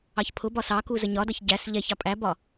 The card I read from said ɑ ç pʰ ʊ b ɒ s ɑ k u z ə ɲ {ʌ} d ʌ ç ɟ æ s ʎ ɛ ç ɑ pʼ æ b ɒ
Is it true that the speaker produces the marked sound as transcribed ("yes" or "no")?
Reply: no